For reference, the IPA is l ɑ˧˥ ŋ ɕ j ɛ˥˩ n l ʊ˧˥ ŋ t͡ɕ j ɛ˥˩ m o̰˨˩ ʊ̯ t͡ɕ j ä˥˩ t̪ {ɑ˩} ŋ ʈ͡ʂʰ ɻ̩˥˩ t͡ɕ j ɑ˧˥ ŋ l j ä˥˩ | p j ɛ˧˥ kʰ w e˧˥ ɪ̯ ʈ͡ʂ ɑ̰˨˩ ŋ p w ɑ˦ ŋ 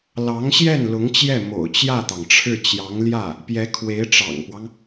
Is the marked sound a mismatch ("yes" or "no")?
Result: no